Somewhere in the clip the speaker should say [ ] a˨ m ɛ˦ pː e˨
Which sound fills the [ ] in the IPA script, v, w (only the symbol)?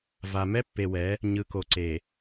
v